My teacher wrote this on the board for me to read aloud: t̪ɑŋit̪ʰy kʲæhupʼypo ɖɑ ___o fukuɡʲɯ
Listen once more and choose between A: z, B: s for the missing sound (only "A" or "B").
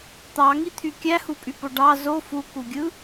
A